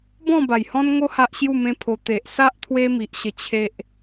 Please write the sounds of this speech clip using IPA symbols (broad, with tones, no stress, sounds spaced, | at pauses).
b ɔ̃˥˧ b a˨˩ j h ɔ̃˦ n ŋ o˦ h a˦ ʔ ɕ j u˥˧ m ẽ˦ pʰ o˧ t̪ e˨ ʔ s a˦ ʔ t̪ʰ w e˦ m i˨ ʔ ɕ ə˧ t͡ɕʰ e˦ ʔ